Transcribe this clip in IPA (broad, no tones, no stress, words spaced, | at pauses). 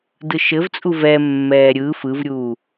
dɯʃɘvt͡sʼu vɛmːɛː ɾʲɯ fɯvɾʲuː